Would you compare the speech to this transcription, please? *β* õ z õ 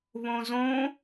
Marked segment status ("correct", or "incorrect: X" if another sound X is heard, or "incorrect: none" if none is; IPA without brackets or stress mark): correct